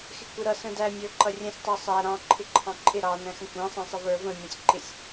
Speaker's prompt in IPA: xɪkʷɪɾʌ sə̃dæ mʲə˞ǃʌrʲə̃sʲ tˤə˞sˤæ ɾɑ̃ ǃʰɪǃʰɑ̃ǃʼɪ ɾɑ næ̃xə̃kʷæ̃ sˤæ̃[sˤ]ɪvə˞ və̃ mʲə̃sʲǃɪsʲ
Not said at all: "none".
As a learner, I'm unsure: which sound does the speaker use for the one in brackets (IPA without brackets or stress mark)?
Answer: sˤ